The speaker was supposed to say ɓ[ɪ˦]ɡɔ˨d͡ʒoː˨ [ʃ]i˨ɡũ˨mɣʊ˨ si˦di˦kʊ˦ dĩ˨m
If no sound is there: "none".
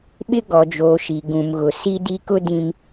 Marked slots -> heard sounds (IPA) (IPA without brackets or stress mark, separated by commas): ɪ˦, ʃ